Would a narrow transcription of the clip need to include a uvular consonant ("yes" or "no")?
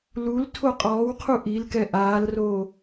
yes